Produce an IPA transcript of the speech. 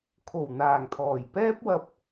kʰ o˨˩ w n̪ aː˨˩ ŋ t̪ʰ ɔː˨˩ j p ɛː˥ p̚ w ɐ˧ p̚

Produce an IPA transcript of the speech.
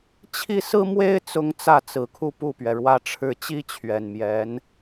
t͡ɕʰ i˥˩ s ɹ̩˥ m w e˥ ɪ̯ t͡s ʊ˥ ŋ t͡s ä˥˩ t͡s ɹ̩˨˩ kʰ u˥˧ p u˥˩ p ɥ ɛ˩ ɻ w ä˥˧ ʈ͡ʂʰ ɻ̩˥˩ t͡ɕ i˥ t͡ɕʰ ɥ ɛ˨˩ n m j ɛ˧˥ n

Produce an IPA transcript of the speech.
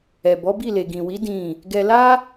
ɛ˨ b ɔ˨˦ b i˦˨ l e˨ ɡ ĩ˨ w i˨˦ d ĩ˦˨ | ɡ ɛ˧ l a˦

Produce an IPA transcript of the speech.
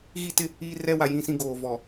ɣ i˦ t ɪ˦ | iː˦ r ɛ˦ w a˨ j ĩ˦˨ s ĩ˦ ɡ oː˨ v ɔ˨

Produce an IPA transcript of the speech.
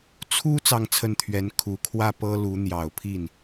t͡sʰ u˥ t͡s ɑ˥˧ ŋ t͡sʰ ə˥˩ n t̪ʰ ɥ ɛ˧˥ n kʰ u˨˩ kʰ w ä˥˩ p ɤ˥ l u˧˥ n̪ j ɑ˨˩ ʊ̯ pʰ i˥˩ n

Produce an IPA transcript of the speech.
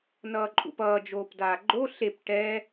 n ʌː ǃʼ ṵ p ʌː d͡ʒ oː p d aː ɡ͡ǃ o ɬ e p ʈ ɛ

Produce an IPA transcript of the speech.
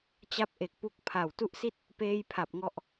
t͡ɕ a˥˩ p̚ ʔ e˨˩ k̚ p u˥˩ k̚ pʰ a˨˩ w t u˦˥ ʔ s i˥˩ t̚ | p eː˥˩ j pʰ a˨˩ p̚ ŋ ɔ˥˩ ʔ

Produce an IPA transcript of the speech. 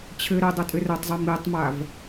t͡ɕʰ ɘ ɾ ɘ dˤ ɐ tʼ ɘ r ɐ tˤ zˤ i m i tˤ m a v

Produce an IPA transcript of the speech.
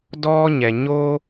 d ɔː˥ ɲ ɛ˩ ɲ o˥

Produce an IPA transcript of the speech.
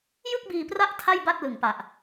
j ɯ˥˩ k̚ b iː˧ p r a˦˥ ʔ tʰ a˥˩ j b a˥˩ t̚ l ɯ˨˩ ŋ p a˨˩ ʔ

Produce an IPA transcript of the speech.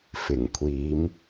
f ɪ˨˩ ŋ kʷʰ iː˨˧ m

